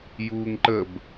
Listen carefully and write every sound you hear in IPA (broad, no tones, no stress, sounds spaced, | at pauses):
j uː ŋ ǃ ə b